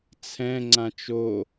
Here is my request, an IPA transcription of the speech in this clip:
t͡sʰ ɛ̃ ŋ͡ǀ ã t͡ʃ o

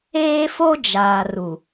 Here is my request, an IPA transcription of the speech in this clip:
eː˦ f o˦ d͡ʒ aː˨ r u˨

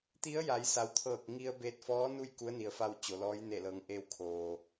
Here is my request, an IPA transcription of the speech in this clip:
t̪ i˧˥ ə̯ j a˩˧ j s a˩˧ w t̪ʰ ɤː˧˩ k̚ ŋ i˧ ə̯ b eː˧ t̚ f ɔː˧˥ n u˥˨ j k u˧˥ ə̯ n i˩ ə̯ f a˧ w t͡ɕ o˩ l ɔː˧˥ j n e˧˩ l ɤː˩˧ ŋ ʔ eː˧ w kʰ oː˩

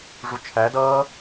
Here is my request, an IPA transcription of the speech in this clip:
ʐ u t͡ʃʰ æ d ʌː

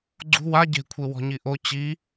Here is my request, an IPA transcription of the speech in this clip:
ɡ͡ǀ ṳ w a ɟ e̤ kʷʰ e w ɔ̤ ɲ i ʔ o t͡ɕ i

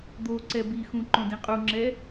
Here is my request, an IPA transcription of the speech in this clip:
d̪ o ǀ ɛ b i x ũ ǃ õ d ĩ qʼ u ŋ͡ǁ ɛ

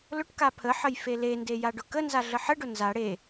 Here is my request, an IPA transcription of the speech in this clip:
l ʊ ʈ k a pʰ ə ħ ə j f e l e n d e j a ɖ ʊ k ə n z a ɮ ə ħ ə ɖ ʊ n z a ɽ e

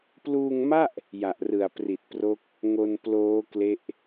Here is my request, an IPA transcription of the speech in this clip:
p l uː˧ ŋ m a˥˩ ʔ | j a˨˩ ʔ r ɯ˨˩ a̯ p r i˨˩ t̚ p r o˦˥ k̚ | ŋ o˧ n p l oː˦˥ k l e˦˥ ʔ

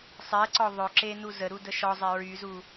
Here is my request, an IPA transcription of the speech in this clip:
sˤ ɛ ǀ ɔ ðˤ ʊ ǁ e n u z ə ɾ u d ə ʃ ɔ zˤ e ɹ y z u

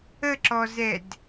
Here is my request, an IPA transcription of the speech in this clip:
ə ǁ ɔ z ɛ d

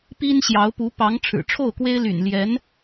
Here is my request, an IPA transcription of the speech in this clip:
p i˥ n ɕ j ɑ˧˥ ʊ̯ p u˧˥ p ɑ˧˥ ŋ ʈ͡ʂʰ ɻ̩˨˩ ʈ͡ʂʰ o˥˩ ʊ̯ k w e˥ ɪ̯ l y̰˨˩ n l j ɛ˧˥ n

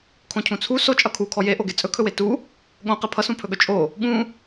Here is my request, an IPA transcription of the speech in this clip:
kʰ õ cʰ ũ t͡sʰ u s o t͡ʃʼ ʌ kʰ u kʰ ɔ j e ʔ o ɡ e t͡sʼ ɵ kʰ ɵ w e t u | ɠ õ q e pʰ ʌ s ũ pʰ ɵ ɠ ɵ t͡ʃʼ o | ɠ ũ

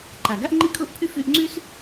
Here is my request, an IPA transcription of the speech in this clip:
ǃ a˨ ɡ a˦ ʔ ŋ͡ǃ i˦ kʰ o˦ ʔ pʰ ʉ˦ f ʉ˧ ʔ ŋ͡ǀ ʉ˦ s

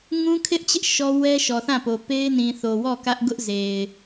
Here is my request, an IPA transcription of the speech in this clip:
ŋ ũ˦ kʰ ɪ˦ ʔ t͡ɕ ɪ˦ ʔ ʃ ɔ˦ w ɛ˦ ʃ ɔ˨ θ ã˦˨ p o˨ p e˦ ɪ̯ n ĩ˨ θ o˨ w ɔ˦˨ k ä˦ ʔ ɡ ʊ˦ ʔ z e˨ ɪ̯

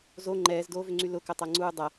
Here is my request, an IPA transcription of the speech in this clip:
z o ŋ͡ǃ ɛː z d oː v ʏ ŋ͡ǀ y l ʊ k ʏ tˤ ɛ ŋ͡ǀ uː dˤ ɐ

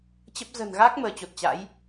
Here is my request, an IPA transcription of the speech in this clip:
t͡ɕ ə˦˥ p̚ z ə̤˨˩ n ɣ a˦˥ k̚ m əː˨˦ t͡ɕ o˨˩ t̚ t͡ɕ a̰˧˥ j

